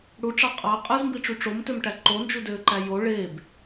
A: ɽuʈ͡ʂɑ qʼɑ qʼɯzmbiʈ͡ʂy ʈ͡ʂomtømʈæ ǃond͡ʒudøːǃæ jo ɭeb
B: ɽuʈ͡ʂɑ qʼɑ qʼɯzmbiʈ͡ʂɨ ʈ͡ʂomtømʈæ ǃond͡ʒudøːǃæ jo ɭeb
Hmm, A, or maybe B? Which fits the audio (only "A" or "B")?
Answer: A